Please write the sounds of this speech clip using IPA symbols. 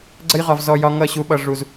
ɡ͡ǀ ə˧ j ʁ ɒ˨ v z ɔ˨ j ɒ˧ ŋ ʌ˦˨ ɕ u˨ ɓ ʌ˨ ʐ u˨ z

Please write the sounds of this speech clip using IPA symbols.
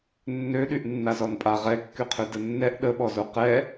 nː ø ɗ y ʔ nː a z ɔ n pʼ a ʁ ɛ kː y qʰ ø d ə nː ɛ ʔ ɗ ə ɓ ɔ z o q ɛ

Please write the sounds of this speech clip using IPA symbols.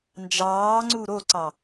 n d͡ʒ ɑː ŋ͡ǀ u ɾ o ǀ ɑ

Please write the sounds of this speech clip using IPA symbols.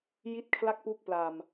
j i˥˩ t̚ kʰ l a˥˩ k̚ p u˦˥ k̚ p l a˨˩ m

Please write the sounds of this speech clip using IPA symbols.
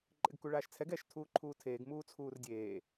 ǃʼ ɪ ɡ k u ɭ aː ʃ t͡sʰ ɛ ɡ ɛ ʃ tʰ uː ǃʰ uː tʰ eː ɡ m uː t͡sʰ uː r dʲ eː

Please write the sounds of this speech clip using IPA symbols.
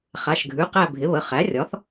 χ a˩˧˩ ʃ ɡʱ ʉ˩˧˩ q æ˦˨ bʱ ɪ˩˥ β ə˩˧˩ χ æ˩˥ rʲ ɒ˩˥ θ

